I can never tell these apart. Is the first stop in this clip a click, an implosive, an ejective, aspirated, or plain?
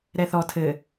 aspirated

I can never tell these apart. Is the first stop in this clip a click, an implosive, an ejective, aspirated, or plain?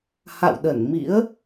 implosive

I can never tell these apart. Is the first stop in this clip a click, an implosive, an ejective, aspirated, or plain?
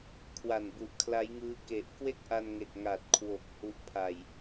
aspirated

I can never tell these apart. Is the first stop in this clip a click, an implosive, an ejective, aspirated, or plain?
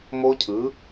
aspirated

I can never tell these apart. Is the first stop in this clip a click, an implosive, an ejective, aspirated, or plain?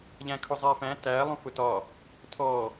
aspirated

